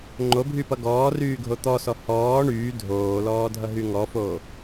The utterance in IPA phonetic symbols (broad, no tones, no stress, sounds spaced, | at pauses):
ŋ͡ǃ o bʱ y p ʌ ɡ ɔː r yː ɡʱ o t̪ ɔ s ɔ h ɔː ɳ yː dʱ oː l ɔː dʱ ʌ ɦ y ŋ ɔ f o